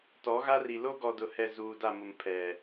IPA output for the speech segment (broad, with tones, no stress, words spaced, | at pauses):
tɔ˨˦ɣa˦ri˨ lo˦ɡɔ˨dʊ˨hɛ˨ zuː˨da˦˨mʊ˨m pʰɛ˨